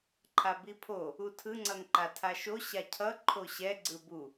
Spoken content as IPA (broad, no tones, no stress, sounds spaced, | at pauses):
ǃʰ a b i pʰ o | u tʰ ɯ ŋ͡ǀ ʌ n ǃ a tʰ a ʃ o ɕ a cʰ ʌ ǃʰ o ɕ ɛ ɡ͡ǀ ɯ b u